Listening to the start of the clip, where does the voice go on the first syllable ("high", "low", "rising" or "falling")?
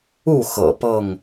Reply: falling